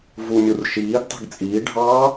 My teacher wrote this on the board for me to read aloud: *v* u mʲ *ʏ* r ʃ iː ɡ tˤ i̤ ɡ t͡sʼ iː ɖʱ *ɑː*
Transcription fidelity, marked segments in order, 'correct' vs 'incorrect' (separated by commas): correct, incorrect, correct